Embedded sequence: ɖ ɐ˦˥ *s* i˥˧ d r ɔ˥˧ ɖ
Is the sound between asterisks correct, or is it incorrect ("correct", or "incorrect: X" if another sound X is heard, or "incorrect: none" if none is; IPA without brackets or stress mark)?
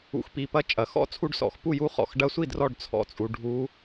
incorrect: sʷ